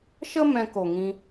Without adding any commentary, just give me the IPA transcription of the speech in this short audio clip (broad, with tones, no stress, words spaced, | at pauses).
ʃə˦ mɛ̃˧ko˨ŋĩ˧